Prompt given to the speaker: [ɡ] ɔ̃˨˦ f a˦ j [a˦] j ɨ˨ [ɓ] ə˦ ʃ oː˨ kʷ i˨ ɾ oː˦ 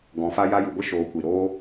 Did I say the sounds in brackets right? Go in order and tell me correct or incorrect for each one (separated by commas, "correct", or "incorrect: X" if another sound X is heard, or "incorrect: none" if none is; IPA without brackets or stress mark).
correct, correct, incorrect: ɡʷ